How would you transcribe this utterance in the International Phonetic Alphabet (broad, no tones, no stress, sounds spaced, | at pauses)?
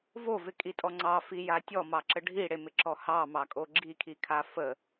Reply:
v o v ɪ kʼ i tʼ ɔ ŋ͡ǀ ɑ f i j a tʲ ɔ m ɑ ǁ ə ɖʱ i ɽ e m ɪ ǁ ɔ h ɑ m ɑ kʼ o ɡ͡ǁ i kʰ i kʰ a f ə